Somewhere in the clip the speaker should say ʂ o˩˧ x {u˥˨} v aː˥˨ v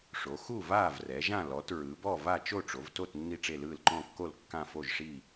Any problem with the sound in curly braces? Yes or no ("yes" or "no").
no